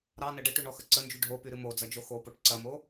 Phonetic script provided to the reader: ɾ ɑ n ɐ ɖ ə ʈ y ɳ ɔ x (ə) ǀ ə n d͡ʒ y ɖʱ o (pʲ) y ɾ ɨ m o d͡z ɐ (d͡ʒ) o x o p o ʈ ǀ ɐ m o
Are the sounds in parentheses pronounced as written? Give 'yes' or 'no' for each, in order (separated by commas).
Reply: yes, no, yes